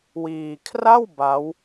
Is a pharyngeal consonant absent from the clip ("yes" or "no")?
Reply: yes